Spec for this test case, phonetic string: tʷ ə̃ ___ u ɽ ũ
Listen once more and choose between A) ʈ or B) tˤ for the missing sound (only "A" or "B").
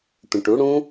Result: A